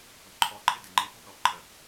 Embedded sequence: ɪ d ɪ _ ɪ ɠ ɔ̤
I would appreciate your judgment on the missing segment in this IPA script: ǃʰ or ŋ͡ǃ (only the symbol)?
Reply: ŋ͡ǃ